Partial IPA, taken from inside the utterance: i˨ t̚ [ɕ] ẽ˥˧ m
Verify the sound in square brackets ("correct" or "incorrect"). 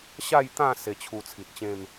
incorrect